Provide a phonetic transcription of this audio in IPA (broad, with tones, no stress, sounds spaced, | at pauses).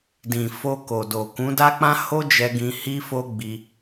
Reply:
d ĩ˨ f o˧ k o˨ d o˨ k ũ˨˦ d a˦ k͡p ã˦ h o˦ d͡ʒ ɛ˧ ɡ ĩ˧ h i˦ f o˦ ɡ͡b i˧